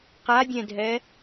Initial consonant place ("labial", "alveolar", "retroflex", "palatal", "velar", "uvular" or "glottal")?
uvular